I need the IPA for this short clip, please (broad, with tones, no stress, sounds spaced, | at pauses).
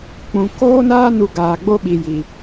k͡p ũ˨ k oː˦ n aː˦ n u˧ ɡ aː˨ ɡ͡b o˦ ɓ i˨ j i˨